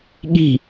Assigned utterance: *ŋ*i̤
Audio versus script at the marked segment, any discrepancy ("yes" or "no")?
yes